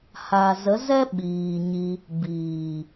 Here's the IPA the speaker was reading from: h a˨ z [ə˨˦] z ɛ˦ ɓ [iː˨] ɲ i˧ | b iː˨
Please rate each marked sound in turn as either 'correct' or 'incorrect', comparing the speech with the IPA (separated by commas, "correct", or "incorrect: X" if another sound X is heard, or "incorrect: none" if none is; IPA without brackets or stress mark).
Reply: correct, correct